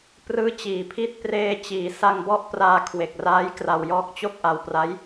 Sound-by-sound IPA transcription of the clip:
p r ɯː˦˥ t͡ɕ iː˩˦ pʰ i˥˩ t̚ p r eː˧ t͡ɕ iː˩˦ s a˧ ŋ b ɔ˥˩ ʔ p r aː˧ kʰ w e˨˩ k̚ r aː˦˥ j k r a˧ w j ɔː˦˥ k̚ t͡ɕ o˥˩ k̚ ʔ a˧ w p r a˦˥ j

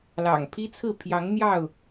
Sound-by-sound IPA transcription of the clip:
l ɑ̰˨˩ ŋ pʰ i˦ t͡sʰ ɹ̩˥˨ pʰ j ɑ˨˦ ŋ n̪ j ɑ˥˨ ʊ̯

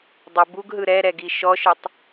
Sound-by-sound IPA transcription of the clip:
dˤ ɤ b u ɡ ɦ ɯ ɾ ɛ ɾ ɛ ɡ i ʃ ɔ ʃ ɯ tˤ

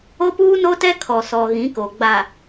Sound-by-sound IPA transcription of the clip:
o˦ p uː˦ n o˦ t ɛ˦ kʰ ɔ˨ s ɔ˨ ɣ ĩ˨˦ k o˨ ɡ͡b a˨

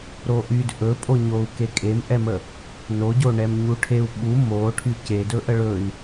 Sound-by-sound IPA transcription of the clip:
ɾ o ʔ y d ʔ ɵ pʼ o ɲ o u̯ k e kʼ e m ʔ ɛ m ə | n o ɟ o ɳ ɛ m ɲ u ʈʰ e u̯ ɓ u m o ʈʰ y c e d ɵ ʔ ə ɭ ɵ i̯

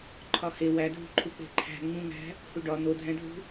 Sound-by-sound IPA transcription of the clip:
ǃʰ ɒ h e w æ dʱ ṳ ǃʰ u k͡p e̤ ǃʰ æ̤ ŋ͡m ũ ŋ æ̤ | h u ɖ ɒ n̪ o dʱ æ̃ dʱ ṳ

